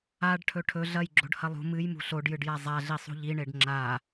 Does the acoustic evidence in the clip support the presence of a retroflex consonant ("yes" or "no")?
yes